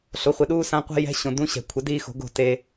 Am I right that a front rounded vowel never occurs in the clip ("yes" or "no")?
yes